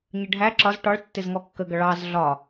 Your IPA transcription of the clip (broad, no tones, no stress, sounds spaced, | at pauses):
ɲ ə ɖʱ æ ǁ ɒ z ʈ ɒ ɭ tː ɪ z ŋ ɔ kː ə ɡ ʌ ɭ ɑ z ɮ ɒ